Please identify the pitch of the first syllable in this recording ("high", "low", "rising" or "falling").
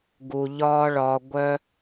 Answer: low